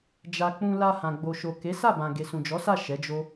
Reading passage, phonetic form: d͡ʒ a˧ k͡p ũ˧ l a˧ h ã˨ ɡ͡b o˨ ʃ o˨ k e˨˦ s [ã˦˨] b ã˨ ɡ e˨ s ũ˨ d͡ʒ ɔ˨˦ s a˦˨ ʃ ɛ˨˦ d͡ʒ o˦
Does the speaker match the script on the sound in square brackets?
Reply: no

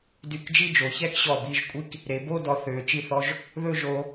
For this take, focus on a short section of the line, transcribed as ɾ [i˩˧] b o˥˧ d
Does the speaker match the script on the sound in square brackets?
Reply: no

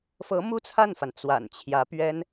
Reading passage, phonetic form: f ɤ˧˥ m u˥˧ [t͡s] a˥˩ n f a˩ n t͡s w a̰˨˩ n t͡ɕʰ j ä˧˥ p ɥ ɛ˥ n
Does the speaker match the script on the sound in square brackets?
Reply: no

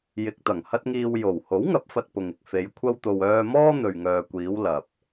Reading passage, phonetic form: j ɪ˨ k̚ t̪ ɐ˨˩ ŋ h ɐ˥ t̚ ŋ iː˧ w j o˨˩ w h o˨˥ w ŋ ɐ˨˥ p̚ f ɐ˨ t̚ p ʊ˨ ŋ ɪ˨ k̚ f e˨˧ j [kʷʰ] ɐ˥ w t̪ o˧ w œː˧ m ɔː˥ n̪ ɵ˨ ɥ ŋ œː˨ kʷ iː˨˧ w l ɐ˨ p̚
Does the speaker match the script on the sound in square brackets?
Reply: yes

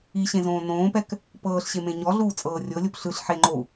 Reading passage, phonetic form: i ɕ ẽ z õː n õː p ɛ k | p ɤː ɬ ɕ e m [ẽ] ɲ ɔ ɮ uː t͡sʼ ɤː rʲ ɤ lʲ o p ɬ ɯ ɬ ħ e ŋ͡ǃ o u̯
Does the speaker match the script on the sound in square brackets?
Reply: yes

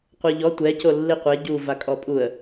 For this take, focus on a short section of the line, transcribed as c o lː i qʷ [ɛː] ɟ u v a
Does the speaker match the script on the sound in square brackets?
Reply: no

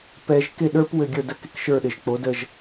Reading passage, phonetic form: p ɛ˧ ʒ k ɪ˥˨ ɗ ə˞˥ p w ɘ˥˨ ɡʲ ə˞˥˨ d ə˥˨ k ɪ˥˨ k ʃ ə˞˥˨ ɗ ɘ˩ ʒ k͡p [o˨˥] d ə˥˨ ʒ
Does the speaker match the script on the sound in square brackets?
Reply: yes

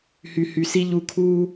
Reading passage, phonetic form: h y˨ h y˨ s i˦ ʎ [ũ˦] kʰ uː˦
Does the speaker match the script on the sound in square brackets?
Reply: no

